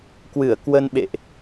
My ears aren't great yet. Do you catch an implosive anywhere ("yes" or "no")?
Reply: yes